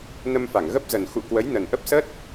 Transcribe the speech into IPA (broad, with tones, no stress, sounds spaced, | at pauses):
n ə˧ m f a˧˩ ŋ ɣ ə˦˥ p̚ z ə˨˩ n x ṵ˧˨ k w ə˨˦ j n ə˨˩ n ʔ ə˦˥ p̚ s ə˦˥ t̚